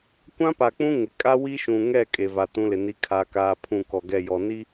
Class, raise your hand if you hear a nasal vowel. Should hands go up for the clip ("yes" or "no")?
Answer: yes